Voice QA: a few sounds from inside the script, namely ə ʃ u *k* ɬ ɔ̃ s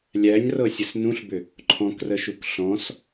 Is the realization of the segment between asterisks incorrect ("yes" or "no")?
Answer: no